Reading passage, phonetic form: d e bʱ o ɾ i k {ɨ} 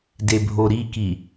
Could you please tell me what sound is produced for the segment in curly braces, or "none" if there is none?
i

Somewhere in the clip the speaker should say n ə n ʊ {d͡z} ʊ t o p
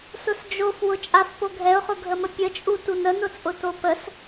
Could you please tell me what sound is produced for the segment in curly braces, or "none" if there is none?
t͡sʼ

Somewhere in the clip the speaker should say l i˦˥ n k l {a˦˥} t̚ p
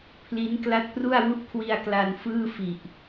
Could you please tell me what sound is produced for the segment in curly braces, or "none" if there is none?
a˦˥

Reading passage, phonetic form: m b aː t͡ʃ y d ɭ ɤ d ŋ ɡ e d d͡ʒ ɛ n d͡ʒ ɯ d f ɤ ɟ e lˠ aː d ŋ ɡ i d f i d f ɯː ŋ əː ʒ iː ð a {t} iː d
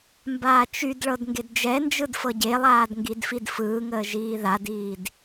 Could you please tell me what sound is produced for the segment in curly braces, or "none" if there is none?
d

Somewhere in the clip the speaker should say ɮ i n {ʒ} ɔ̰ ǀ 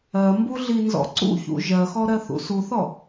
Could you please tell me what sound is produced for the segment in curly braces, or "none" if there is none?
z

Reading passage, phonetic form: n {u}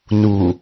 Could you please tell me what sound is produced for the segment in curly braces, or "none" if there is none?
u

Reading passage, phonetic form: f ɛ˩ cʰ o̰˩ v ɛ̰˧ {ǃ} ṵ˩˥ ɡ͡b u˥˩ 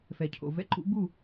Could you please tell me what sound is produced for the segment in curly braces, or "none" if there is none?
ǃ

